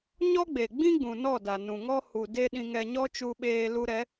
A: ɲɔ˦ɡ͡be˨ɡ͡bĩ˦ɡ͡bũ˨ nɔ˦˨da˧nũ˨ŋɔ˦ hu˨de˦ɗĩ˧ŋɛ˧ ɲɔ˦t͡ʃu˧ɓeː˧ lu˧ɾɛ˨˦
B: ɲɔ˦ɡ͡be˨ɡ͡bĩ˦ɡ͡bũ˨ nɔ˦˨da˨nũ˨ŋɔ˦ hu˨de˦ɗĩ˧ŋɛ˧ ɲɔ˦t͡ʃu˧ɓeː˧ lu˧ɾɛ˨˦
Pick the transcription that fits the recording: B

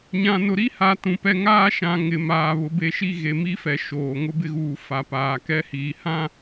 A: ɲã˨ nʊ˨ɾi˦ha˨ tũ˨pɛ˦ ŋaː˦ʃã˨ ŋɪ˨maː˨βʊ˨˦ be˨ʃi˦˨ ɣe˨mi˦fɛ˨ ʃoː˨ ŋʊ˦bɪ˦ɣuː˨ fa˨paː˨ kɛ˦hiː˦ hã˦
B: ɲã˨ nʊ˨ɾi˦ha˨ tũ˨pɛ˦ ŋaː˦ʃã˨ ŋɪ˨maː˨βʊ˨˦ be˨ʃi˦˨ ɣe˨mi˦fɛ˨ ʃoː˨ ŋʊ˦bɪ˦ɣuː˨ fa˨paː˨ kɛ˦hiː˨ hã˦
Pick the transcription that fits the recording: B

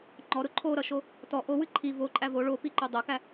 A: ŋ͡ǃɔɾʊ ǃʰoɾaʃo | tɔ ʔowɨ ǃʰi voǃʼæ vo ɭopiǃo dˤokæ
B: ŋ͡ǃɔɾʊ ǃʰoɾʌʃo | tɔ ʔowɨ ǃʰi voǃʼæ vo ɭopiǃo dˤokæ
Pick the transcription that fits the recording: B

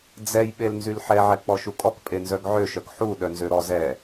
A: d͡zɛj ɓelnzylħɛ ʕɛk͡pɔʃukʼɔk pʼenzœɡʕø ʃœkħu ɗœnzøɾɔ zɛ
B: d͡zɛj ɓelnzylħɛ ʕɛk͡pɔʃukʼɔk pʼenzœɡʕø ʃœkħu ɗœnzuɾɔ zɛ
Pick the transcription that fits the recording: A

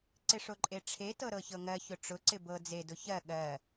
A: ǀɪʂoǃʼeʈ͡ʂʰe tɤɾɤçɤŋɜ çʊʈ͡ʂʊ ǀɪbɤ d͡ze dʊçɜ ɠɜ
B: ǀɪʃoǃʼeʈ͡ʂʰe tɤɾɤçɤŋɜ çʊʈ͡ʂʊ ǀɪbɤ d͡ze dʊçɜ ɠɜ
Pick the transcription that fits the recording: A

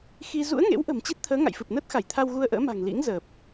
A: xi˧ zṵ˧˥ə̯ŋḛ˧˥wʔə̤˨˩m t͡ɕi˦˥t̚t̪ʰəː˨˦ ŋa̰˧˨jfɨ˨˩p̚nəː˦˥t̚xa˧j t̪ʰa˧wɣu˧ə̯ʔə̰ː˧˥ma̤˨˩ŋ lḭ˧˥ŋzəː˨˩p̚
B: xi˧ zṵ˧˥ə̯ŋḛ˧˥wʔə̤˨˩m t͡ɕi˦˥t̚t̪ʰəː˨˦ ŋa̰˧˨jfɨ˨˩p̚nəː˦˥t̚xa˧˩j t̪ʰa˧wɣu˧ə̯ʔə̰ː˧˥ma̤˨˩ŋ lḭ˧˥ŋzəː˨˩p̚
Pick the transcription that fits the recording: B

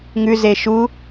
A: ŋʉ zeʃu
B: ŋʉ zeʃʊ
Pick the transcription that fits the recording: A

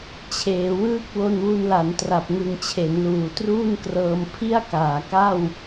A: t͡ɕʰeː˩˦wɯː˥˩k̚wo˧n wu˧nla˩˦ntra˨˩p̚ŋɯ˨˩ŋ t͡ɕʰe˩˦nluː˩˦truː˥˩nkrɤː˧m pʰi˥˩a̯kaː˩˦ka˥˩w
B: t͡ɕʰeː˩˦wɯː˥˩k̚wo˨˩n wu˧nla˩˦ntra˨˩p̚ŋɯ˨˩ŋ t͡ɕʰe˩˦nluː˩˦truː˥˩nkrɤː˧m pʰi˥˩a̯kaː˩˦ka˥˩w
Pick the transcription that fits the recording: A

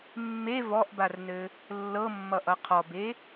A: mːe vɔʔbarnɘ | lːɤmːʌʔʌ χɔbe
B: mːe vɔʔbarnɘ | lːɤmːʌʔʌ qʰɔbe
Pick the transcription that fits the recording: B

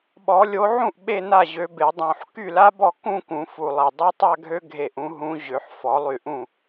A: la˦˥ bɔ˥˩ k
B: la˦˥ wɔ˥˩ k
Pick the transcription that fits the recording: A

